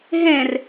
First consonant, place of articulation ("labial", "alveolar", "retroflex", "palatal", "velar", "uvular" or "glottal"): glottal